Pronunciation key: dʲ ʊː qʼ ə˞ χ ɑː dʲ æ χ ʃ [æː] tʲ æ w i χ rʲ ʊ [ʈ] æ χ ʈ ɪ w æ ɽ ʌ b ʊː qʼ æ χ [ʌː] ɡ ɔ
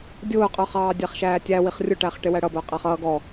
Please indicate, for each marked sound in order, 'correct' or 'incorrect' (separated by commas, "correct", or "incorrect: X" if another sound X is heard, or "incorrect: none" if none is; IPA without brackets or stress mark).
correct, correct, correct